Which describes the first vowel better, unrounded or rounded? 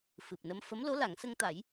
unrounded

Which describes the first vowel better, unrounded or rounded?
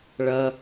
unrounded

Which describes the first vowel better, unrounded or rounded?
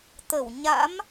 unrounded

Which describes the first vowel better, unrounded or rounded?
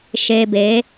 unrounded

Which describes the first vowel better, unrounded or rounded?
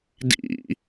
unrounded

